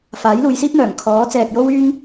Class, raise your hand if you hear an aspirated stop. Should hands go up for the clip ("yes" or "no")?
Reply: yes